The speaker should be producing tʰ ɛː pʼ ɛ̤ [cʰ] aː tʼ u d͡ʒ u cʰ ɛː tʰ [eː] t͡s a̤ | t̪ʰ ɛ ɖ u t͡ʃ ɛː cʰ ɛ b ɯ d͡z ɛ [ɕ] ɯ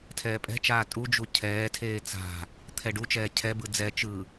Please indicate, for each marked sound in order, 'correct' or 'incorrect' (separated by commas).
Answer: incorrect, correct, incorrect